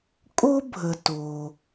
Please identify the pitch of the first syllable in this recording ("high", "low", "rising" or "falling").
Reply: high